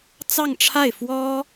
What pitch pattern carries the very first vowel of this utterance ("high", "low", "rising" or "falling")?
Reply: falling